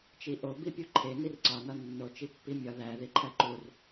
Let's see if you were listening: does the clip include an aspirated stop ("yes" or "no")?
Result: yes